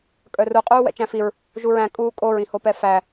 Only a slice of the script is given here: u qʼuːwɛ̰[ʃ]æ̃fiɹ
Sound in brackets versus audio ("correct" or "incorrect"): incorrect